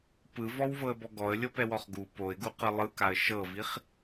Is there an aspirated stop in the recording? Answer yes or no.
no